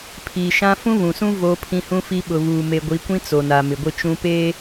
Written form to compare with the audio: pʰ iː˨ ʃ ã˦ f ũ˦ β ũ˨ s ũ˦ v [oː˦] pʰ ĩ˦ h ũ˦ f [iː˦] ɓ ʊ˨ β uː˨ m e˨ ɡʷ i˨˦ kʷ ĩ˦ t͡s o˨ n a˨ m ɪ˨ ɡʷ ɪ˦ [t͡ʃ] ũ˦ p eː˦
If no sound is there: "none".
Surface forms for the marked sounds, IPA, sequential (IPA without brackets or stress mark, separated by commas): oː˦, i˦, t͡ʃ